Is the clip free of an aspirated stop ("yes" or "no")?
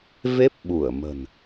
yes